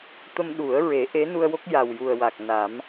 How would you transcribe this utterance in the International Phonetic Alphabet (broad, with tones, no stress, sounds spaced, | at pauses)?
t̪ ə˧ m ɗ u˨˩˦ ə̯ ɹ e˨˩˦ ʔ e˧˥ n u˧ ə̯ w o˦˥ k̚ j a˨˩ w j u˨˩ ə̯ w a˨˩ k̚ n a˨˩˦ m